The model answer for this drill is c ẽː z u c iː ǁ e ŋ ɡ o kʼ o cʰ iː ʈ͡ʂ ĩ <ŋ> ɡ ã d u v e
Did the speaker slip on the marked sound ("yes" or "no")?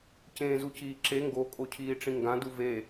no